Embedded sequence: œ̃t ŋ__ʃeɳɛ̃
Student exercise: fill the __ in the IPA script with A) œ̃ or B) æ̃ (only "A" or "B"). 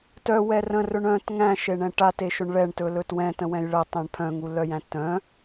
B